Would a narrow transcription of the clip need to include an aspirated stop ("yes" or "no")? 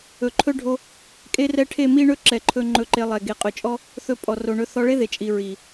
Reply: yes